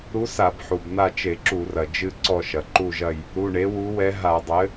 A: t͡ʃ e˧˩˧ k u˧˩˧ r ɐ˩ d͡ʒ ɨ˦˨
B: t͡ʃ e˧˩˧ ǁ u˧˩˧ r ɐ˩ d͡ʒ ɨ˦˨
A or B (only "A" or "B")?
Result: B